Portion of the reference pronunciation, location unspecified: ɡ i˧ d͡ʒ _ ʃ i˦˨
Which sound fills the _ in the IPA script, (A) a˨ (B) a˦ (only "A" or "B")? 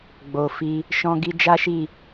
B